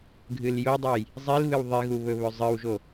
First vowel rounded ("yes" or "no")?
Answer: no